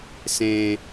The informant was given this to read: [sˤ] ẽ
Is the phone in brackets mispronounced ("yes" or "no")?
yes